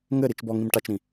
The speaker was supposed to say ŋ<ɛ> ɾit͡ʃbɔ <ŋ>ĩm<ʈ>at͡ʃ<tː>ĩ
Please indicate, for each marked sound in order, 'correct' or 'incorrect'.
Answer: incorrect: ɘ, correct, correct, incorrect: ɾ

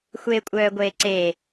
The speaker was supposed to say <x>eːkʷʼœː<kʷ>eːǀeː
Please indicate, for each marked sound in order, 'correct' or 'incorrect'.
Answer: incorrect: xʷ, incorrect: ɡʷ

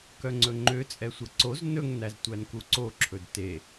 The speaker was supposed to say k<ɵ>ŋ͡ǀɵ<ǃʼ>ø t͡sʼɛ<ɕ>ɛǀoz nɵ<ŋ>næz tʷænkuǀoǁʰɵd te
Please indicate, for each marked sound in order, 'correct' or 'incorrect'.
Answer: incorrect: œ, incorrect: ŋ͡ǃ, incorrect: sʷ, correct

